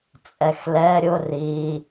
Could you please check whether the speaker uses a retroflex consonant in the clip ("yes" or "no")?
no